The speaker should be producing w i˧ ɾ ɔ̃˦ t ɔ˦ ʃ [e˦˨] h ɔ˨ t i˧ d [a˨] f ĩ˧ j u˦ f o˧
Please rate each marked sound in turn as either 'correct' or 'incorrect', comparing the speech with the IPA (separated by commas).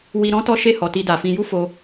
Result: correct, correct